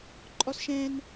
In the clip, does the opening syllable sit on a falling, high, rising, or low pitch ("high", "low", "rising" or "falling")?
high